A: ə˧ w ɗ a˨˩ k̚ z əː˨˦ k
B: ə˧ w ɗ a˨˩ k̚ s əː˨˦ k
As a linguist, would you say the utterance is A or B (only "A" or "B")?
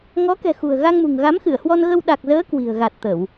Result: A